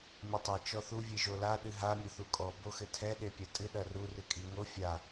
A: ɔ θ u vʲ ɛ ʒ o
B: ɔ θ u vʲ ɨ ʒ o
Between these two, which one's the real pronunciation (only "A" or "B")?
B